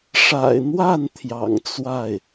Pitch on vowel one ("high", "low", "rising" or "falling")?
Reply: low